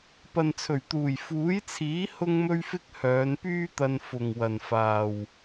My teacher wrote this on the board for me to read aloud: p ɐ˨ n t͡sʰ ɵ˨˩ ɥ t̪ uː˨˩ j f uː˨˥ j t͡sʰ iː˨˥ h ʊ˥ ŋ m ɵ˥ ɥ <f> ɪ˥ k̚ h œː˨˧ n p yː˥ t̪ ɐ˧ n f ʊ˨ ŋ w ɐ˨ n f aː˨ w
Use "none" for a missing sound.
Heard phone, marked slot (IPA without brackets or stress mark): f